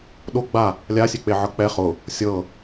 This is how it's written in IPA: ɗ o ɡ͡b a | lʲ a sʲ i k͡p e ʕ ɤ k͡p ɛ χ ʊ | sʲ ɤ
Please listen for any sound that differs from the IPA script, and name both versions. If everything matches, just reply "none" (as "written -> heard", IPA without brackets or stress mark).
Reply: i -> e